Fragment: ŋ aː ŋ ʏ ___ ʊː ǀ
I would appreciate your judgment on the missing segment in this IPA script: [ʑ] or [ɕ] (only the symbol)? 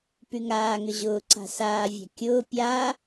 ʑ